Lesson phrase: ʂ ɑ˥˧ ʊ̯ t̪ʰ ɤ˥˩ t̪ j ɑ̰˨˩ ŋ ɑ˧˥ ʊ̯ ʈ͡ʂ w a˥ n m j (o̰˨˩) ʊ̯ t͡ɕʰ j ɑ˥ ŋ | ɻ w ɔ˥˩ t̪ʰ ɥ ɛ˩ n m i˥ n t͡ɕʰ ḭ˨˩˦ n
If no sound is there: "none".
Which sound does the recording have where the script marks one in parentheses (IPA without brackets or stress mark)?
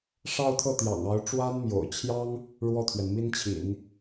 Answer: o̰˨˩